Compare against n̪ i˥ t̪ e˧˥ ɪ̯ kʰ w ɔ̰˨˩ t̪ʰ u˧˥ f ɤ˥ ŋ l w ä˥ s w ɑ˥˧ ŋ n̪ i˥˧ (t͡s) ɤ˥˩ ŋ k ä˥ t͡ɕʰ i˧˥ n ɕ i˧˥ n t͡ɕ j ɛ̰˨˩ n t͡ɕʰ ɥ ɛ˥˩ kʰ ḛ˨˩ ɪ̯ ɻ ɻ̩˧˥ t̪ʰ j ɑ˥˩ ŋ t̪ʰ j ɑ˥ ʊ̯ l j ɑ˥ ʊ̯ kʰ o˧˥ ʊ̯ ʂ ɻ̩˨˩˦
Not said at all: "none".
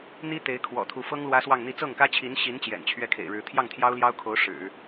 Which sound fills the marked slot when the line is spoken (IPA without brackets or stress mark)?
t͡s